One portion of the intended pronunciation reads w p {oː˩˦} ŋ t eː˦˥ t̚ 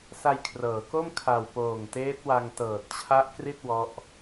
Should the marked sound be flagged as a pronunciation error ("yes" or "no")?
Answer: yes